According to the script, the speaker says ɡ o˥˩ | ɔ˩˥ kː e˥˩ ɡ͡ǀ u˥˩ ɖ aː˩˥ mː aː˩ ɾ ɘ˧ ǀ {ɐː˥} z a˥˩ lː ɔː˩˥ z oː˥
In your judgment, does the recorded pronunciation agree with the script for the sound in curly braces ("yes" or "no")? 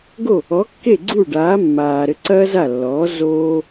yes